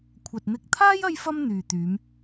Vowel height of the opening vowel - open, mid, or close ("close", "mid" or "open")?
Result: open